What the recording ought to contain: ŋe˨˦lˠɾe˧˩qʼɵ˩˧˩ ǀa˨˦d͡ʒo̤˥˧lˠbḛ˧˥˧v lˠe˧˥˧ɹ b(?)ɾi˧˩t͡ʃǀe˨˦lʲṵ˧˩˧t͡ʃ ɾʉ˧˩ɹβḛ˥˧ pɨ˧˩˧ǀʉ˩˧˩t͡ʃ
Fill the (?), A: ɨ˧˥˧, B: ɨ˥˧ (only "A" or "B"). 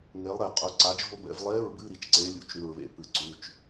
A